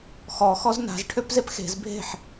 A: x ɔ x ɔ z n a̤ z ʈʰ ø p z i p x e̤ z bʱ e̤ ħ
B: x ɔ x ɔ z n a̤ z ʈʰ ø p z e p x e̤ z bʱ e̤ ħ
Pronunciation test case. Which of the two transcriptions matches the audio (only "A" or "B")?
B